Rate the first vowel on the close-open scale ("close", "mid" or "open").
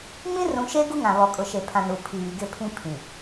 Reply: close